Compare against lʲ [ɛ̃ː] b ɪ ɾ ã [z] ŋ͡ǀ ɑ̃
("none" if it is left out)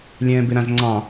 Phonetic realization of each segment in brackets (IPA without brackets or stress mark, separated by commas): ɛ̃ː, z